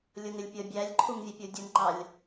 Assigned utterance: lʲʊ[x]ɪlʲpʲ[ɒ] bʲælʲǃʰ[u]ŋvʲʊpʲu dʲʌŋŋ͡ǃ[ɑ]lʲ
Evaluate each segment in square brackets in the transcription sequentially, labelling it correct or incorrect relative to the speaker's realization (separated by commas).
incorrect, incorrect, correct, correct